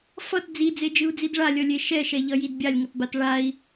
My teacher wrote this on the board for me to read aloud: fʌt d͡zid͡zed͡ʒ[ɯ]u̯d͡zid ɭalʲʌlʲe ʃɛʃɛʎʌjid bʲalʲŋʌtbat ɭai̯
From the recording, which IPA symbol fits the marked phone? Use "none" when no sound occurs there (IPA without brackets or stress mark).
ɯ